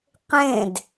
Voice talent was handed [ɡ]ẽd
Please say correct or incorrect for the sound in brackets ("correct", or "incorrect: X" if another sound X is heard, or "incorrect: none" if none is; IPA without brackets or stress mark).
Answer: incorrect: q